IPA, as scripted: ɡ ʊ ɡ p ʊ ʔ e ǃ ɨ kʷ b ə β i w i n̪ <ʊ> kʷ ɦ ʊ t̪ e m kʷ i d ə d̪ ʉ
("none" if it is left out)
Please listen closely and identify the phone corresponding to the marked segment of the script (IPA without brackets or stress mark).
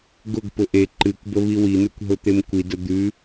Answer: ʉ